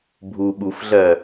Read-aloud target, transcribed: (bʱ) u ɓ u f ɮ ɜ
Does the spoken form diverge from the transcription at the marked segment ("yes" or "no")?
no